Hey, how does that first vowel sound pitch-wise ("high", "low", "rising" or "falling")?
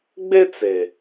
high